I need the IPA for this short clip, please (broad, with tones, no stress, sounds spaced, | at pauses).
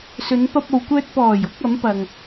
s ɵ˨˧ n p ɐ˧ p̚ o˨ w kʷ œː˧ t̚ p ɔː˨˩ j ʊ˧ k̚ ɐ˨˥ m p ɐ˨ ŋ